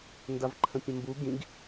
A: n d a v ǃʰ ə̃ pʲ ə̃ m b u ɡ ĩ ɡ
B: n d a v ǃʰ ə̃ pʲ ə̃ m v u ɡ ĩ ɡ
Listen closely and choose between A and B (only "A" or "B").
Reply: A